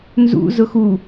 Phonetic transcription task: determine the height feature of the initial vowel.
high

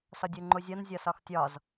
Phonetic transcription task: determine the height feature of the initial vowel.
low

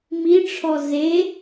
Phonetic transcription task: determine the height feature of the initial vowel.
high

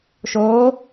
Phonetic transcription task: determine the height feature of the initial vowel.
mid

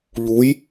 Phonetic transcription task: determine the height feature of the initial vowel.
high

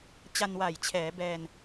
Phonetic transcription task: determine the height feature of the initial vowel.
low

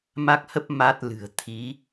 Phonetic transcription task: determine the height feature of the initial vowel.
low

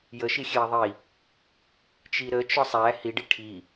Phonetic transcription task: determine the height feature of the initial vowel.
mid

